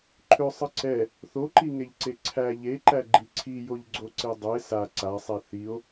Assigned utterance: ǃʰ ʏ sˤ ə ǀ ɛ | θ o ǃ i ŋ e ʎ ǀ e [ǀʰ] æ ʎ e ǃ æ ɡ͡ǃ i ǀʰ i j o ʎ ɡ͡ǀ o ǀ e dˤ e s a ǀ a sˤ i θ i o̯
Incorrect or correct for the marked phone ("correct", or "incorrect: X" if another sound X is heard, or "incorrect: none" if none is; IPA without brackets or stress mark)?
correct